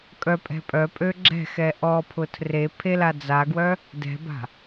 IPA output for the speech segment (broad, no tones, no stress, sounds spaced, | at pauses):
kʼ œ pʼ ɛ̤ pʼ œ pʼ ø ɡ͡ǁ ɛ̤ x ɛ ʔ ɔ pʰ ʊ tʰ r e pʰ e l a d͡z a ɡ w œ | d ɛ̤ b a̤